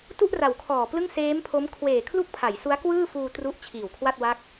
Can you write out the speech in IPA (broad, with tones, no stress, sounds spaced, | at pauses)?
t u˥˩ ʔ r a˩˦ w kʰ ɔː˨˩ p l ɯ˥˩ ŋ s eː˦˥ m pʰ o˦˥ m kʰ w eː˨˩ kʰ l u˥˩ k̚ pʰ a˩˦ j s u˦˥ a̯ k w ɯː˥˩ f uː˧ t r u˦˥ ʔ t͡ɕʰ iː˨˩ w kʰ w a˥˩ t̚ w a˦˥ k̚